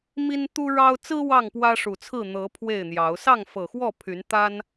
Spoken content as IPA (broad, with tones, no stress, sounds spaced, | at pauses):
m i˦ n t̪ u˦ ɻ ɑ˦ ʊ̯ t͡s ɹ̩˦ w ɑ˥˨ ŋ p w ä˦ ʂ u˨˩ t͡sʰ ɹ̩˥˨ n̪ ɤ˨˦ pʰ w e˥˨ ɪ̯ n̪ j ɑ˨˦ ʊ̯ s ɑ˥˨ ŋ f ɤ˨˩ x w ɔ˥˨ pʰ y˨˦ n t̪ a˦ n